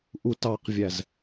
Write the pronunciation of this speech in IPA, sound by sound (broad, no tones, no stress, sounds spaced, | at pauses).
ʔ u t ɑ q vʲ æ z